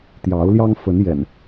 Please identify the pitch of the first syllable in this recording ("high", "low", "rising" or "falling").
rising